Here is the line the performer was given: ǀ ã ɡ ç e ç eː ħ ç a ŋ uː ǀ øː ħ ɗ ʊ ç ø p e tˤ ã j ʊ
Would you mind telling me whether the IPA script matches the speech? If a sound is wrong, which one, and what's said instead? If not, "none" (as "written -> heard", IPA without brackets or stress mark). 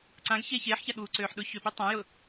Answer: ŋ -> ɠ